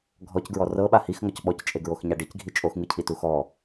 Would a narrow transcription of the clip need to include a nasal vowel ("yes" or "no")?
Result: no